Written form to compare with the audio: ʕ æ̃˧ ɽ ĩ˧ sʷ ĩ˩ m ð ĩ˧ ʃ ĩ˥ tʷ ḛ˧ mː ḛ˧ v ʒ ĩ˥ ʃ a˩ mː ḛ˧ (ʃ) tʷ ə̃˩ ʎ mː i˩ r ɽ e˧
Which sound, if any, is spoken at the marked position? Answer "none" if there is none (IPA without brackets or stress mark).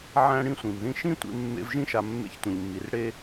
ç